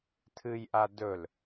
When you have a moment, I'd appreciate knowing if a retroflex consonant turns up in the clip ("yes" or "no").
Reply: no